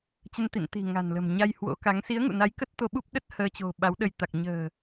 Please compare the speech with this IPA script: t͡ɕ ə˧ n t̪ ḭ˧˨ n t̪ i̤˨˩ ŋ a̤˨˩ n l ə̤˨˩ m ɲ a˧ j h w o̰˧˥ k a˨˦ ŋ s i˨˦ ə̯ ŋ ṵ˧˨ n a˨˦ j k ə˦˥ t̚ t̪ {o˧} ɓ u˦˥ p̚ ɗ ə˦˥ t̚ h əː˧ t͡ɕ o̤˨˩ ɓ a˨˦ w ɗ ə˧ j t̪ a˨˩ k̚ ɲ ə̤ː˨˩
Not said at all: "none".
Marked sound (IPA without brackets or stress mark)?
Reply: o˧